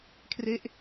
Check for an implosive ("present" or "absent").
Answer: absent